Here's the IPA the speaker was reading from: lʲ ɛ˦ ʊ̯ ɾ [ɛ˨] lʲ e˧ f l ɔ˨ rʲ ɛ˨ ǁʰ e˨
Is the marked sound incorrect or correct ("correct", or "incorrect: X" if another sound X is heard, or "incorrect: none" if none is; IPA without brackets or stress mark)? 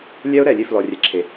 correct